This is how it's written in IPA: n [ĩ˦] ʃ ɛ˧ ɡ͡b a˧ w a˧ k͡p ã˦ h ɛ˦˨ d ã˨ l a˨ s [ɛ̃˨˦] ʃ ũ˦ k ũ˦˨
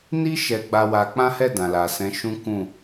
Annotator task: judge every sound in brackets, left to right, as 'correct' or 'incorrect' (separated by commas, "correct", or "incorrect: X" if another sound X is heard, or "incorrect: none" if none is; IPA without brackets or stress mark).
incorrect: i˦, correct